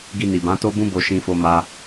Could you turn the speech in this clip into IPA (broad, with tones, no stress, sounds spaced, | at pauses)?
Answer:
ɡ i˧ n i˨ b ã˨˦ t o˦ b ũ˦ b o˧ ʃ ĩ˧ f o˧ m a˧